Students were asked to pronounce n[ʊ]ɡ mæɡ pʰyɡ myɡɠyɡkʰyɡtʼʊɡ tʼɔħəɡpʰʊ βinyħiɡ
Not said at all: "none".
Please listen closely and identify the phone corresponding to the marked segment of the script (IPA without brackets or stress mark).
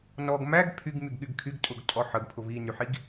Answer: ɔ